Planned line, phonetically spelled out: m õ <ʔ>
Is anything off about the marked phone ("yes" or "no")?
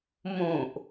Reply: no